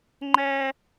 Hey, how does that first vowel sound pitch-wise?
high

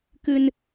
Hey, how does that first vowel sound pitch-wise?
low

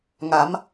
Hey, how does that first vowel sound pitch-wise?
rising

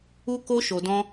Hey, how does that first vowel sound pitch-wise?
high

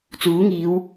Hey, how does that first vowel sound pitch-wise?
rising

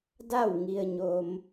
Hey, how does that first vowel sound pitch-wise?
falling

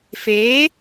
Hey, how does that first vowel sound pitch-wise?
rising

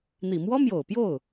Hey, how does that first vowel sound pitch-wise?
low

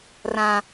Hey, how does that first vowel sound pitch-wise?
high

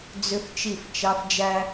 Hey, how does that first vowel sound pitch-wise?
high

